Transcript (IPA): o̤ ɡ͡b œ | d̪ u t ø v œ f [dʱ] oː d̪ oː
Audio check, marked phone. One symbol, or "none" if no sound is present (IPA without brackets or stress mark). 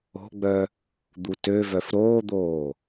ɾ